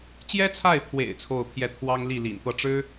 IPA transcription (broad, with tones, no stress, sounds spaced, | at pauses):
t͡ɕ j ɛ˥ t͡sʰ a˥˩ ɪ̯ pʰ w ḛ˨˩ ɪ̯ t͡sʰ o˥˧ ʊ̯ pʰ j ɛ˥˩ t̪ʰ w ɑ˥ ŋ l i˥˩ l ḭ˨˩ n t̪ ɤ˥˩ ʈ͡ʂ ɻ̩˥